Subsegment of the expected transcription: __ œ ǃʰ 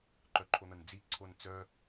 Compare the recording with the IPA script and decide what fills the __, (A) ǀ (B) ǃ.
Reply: B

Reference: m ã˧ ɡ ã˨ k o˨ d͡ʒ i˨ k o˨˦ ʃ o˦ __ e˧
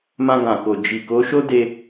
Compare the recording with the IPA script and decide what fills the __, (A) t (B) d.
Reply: B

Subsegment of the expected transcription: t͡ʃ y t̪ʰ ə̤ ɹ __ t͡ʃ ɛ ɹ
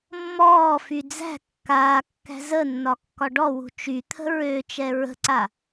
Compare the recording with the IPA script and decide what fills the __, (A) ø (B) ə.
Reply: A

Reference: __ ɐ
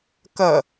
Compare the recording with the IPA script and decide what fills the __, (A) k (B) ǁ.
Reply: A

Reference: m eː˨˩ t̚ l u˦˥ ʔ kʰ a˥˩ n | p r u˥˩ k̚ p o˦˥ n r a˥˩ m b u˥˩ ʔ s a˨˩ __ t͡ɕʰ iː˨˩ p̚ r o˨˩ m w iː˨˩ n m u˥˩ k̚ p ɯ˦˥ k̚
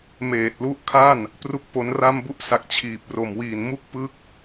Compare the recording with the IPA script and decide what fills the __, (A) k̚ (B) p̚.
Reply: A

